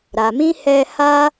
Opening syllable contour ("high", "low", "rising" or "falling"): low